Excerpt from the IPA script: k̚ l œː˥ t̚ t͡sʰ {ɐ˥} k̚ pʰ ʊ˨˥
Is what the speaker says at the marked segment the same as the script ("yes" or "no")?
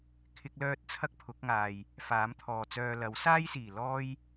yes